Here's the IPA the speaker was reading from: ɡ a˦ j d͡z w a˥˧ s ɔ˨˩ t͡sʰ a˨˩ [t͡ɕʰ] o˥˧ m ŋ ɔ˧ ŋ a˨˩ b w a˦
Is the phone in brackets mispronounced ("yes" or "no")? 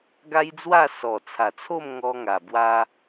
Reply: yes